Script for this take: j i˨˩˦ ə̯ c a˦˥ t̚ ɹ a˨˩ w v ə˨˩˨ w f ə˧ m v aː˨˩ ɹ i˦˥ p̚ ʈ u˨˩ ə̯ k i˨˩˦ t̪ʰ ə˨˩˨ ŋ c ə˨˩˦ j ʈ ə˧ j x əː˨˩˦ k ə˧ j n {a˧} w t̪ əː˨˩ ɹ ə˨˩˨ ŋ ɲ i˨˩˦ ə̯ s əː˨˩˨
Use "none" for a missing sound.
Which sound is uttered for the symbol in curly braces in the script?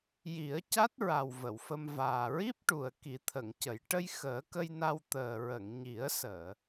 a˧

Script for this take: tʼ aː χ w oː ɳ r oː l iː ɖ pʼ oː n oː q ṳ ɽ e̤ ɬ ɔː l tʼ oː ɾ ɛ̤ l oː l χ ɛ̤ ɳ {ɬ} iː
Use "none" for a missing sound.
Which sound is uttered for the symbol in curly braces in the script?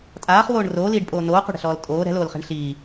ɬ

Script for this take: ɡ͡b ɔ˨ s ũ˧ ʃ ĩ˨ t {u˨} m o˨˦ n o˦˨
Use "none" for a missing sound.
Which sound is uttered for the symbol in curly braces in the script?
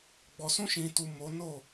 u˨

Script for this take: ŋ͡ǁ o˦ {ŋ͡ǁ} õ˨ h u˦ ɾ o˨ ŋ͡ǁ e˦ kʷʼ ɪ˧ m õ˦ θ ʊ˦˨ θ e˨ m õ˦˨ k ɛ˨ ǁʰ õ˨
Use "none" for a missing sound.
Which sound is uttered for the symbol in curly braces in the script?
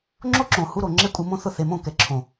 ǁ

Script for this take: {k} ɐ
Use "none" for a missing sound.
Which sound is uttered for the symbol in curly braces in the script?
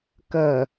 k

